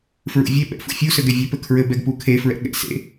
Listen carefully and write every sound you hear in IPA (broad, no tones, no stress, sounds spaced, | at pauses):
f ɹ ṵ vʲ e ɓ ɛ̰ f ṵ fʲ u s ɘ ɡ ɛ vʲ ɘ p ɘ kʰ ɹ ɘ b ɛ ɡ p u kʰ e f ɹ ɛ̰ ɠ ɛ̰ s ḛ